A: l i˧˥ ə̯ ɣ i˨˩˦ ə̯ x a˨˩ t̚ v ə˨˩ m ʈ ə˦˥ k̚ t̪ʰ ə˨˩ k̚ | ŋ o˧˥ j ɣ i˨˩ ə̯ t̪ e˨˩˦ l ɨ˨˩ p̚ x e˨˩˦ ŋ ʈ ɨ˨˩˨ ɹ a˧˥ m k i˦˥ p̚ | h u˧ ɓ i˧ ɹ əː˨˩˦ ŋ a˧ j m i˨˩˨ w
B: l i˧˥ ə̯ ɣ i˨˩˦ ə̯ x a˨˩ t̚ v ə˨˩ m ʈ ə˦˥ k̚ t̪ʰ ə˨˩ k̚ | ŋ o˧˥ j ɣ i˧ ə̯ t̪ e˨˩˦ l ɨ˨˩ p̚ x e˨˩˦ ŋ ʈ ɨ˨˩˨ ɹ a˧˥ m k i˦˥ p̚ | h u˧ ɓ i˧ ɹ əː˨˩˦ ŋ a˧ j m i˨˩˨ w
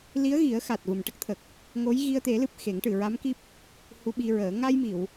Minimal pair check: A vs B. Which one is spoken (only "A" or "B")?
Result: B